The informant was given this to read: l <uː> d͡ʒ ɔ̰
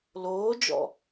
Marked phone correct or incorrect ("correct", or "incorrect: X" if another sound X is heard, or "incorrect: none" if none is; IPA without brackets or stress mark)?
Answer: incorrect: oː